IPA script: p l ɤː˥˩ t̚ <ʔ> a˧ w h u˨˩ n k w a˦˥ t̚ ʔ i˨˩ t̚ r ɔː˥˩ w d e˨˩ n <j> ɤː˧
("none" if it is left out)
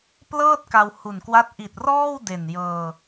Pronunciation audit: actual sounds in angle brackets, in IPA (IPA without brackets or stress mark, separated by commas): k, j